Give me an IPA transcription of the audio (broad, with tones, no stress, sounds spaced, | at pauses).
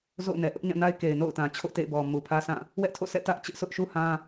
z o̰˦˨ ʊ̯ n ɛ˨ ʔ ʊ˦ ʔ ɲ ã˦˨ n a˦ ɪ̯ k e˨ ɪ̯ n o̰˦˨ ʊ̯ t ã˨ t͡ɕʰ o̰˦˨ t ḛ˦˨ ɪ̯ b ɔ˨ m u˨ pʰ ä˦ s ã˦˨ | w ɛ˦ ʔ tʰ o̰˦˨ sʰ ɛ̰˦˨ t ä˦ ʔ t͡ɕ ɪ˦ ʔ s ʊ˦ ʔ ʃ u˦ h ã˦